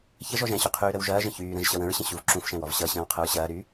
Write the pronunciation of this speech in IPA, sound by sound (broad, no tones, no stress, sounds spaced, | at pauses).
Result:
ç ə ʒ ɔ ʒ ɛ̃ ɕ u qʰ yː ɾ ə w ʒ ɐː ʒ ə̃ ç yː ɾ ə̃ ʒ ɕ ʌ w ə̃ ɹ ɕ ə̃ ɕ u v ǁ ũ f ʃ ɛ̃ w ɔ v ɕ ʌ ɕ ə̃ː w qʰ ə ɹ ɕ ɐː ɾ yː